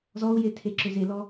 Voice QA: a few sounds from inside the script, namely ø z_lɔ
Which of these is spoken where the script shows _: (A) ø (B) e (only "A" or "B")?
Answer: B